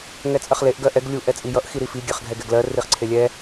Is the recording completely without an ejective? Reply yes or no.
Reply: no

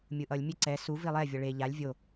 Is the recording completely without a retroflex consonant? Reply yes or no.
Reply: no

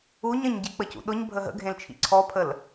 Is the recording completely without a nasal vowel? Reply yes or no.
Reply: no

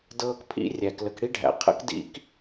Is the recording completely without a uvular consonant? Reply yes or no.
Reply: no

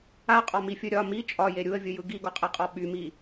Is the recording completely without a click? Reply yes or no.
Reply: yes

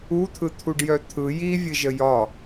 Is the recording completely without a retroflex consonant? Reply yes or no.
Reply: no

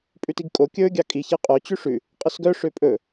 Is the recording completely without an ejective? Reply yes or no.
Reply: no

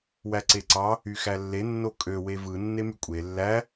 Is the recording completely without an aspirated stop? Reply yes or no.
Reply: yes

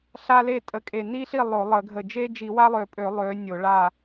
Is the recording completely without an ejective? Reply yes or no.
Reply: no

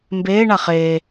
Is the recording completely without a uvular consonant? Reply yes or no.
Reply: no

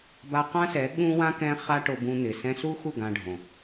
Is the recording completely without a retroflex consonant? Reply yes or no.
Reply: no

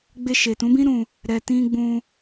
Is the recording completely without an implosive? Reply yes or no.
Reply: yes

